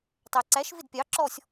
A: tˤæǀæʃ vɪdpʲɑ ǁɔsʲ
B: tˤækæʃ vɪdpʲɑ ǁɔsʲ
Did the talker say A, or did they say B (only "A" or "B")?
A